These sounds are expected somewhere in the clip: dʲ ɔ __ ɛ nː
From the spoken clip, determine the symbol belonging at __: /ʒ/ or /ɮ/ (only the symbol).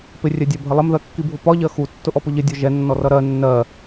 ʒ